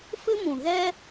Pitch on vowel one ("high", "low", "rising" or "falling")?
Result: high